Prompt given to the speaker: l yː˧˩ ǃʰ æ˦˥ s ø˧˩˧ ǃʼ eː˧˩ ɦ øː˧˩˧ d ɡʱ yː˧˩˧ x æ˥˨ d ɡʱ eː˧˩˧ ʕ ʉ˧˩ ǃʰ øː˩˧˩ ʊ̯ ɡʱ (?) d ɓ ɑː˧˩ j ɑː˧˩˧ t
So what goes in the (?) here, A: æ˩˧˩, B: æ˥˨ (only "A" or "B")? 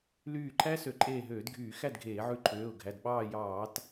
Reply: A